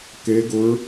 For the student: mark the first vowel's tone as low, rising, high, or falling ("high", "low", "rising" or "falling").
rising